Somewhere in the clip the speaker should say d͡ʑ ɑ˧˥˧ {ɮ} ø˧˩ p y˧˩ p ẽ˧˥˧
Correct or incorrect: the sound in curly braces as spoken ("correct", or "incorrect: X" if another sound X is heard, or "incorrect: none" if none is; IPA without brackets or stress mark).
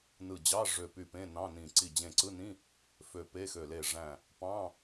incorrect: ʐ